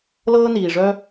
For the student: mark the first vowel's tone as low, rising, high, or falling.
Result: high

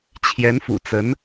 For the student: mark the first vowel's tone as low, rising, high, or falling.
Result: rising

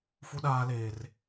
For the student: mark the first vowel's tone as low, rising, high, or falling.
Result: high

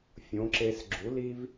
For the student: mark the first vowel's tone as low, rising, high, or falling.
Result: rising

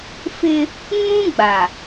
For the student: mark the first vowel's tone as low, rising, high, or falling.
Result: high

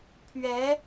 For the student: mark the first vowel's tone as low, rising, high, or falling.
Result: rising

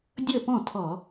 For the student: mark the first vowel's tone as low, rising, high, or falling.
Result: falling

